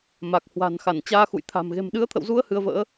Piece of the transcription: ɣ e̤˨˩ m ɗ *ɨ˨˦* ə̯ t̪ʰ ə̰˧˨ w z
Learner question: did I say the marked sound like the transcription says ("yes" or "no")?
yes